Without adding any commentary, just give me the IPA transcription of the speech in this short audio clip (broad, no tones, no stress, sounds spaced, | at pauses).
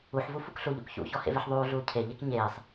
u ħ v u f u k ɬ u ʎ ṵ k ç ṵ ç ɔ h ḛ v e ħ ðˤ uː ɮ uː cʰ e ʎ e k ɲ eː sˤ